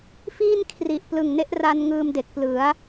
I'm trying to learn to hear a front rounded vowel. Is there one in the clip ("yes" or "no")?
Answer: no